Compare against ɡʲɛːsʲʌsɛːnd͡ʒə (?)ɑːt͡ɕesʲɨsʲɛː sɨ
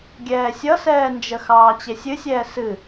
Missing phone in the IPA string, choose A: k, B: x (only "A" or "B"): B